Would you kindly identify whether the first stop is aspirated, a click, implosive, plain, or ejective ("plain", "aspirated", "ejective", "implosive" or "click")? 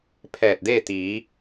aspirated